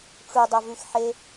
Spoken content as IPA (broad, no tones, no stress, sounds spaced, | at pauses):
ʈ͡ʂ u dˤ ɐ v ʉ x ħ e